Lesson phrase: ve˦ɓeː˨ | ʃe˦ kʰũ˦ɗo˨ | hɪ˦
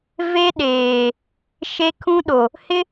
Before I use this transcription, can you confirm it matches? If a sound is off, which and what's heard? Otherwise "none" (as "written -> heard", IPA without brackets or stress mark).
ɓ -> ɗ